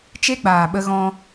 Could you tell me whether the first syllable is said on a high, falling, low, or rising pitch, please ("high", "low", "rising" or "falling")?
high